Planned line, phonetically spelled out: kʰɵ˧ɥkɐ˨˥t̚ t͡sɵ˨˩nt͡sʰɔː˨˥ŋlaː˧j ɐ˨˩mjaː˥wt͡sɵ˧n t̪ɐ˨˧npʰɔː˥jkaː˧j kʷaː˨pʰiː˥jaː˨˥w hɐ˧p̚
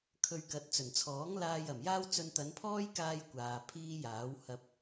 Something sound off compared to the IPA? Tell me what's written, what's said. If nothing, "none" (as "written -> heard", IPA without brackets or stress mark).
none